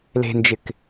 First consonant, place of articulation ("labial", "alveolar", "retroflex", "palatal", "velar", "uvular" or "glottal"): alveolar